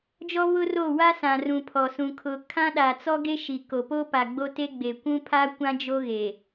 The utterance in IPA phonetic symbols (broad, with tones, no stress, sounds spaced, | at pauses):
d͡ʒ ɔ˦ β ʊ˦ r o˦˨ w a˦ s ã˨ r ũ˨ pʰ ɔ˨ s ũ˨ kʰ ʊ˨ kʰ ã˦ ɗ a˨ t͡s ɔ˦ ɡ e˦ ʃ i˨ k o˨ p o˦ p a˨ ɡ͡b o˦ t e˦ ɡ͡b e˨ kʷ ũ˦ pʰ a˦ kʷ ã˦ d͡ʒ o˦ ɣ e˨